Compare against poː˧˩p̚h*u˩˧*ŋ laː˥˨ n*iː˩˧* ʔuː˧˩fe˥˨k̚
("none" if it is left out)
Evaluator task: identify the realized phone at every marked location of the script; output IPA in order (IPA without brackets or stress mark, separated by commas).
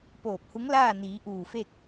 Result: u˧˥, iː˩˧